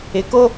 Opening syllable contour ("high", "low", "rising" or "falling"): low